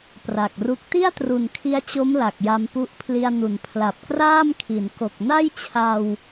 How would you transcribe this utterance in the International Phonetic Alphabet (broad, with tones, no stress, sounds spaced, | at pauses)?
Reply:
p r a˨˩ k̚ r u˦˥ k̚ t i˥˩ a̯ t r u˨˩ n kʰ i˦˥ a̯ t͡ɕ o˦˥ m l a˨˩ k̚ j a˦˥ m p u˥˩ ʔ pʰ l i˧ a̯ n u˨˩ n pʰ l a˨˩ p̚ k r aː˥˩ m kʰ i˩˦ n k o˨˩ k̚ n a˥˩ j t͡ɕʰ a˧ w